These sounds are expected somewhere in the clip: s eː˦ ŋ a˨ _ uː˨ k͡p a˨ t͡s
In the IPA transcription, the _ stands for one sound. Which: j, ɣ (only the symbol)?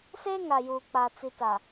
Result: j